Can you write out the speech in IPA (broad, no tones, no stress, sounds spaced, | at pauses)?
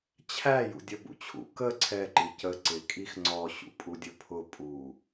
t͡ɕʰ æ j ṵ dʲ ʌ b ṵ t͡ɕʰ ṵ k ə ǀʰ ɛ ǃ i c ə ǀ ɪ kʼ i x ŋ͡ǀ ɔ ɕ ṵ pʼ u dʲ ʊ pʰ ʊ pʼ u